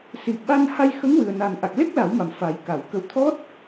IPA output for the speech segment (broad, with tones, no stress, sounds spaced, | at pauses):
s i˨˩ p̚ ɓ a˧ n h a˧ j x ə˧˥ ŋ w ɨ˨˩ ə̯ n a˨˩ n ʔ a˨˩ k̚ l e˦˥ k̚ l a˨˩˦ w m a˨˩ m f a˨˩˦ j k a˨˩˨ w k ə˧ w t̪ʰ ɔ˦˥ t̚